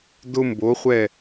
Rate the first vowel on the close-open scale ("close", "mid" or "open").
close